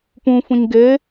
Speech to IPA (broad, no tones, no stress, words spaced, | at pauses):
pũfũɲ ɡe